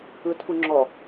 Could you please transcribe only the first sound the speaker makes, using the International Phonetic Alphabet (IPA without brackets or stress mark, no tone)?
ɯ